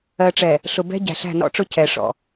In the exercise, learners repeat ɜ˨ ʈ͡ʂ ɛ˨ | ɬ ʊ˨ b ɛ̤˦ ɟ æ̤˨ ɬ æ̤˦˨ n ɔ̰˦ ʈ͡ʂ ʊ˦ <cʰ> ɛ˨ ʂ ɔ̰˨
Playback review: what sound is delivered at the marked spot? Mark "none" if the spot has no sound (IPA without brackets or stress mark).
cʰ